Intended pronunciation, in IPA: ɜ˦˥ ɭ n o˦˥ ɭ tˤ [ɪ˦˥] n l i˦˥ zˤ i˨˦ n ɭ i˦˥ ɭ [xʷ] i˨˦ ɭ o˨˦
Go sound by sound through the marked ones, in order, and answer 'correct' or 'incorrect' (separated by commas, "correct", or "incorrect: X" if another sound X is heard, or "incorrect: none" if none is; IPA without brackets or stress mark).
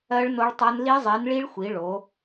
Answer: incorrect: ɛ˦˥, correct